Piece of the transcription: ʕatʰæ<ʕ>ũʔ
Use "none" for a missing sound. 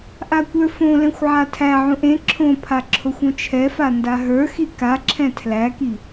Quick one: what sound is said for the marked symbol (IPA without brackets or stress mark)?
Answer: ʕ